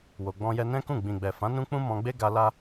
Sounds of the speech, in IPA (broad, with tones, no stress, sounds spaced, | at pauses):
w o˧ ɡ͡b ɔ̃˦ j ɛ˦ n ɛ̃˦ k ũ˦˨ ɡ͡b ĩ˨ ɡ͡b ɛ˨ f ã˨˦ n ũ˦ k͡p ũ˦ m ɔ̃˧ ɡ͡b e˦ ɡ a˧ l a˦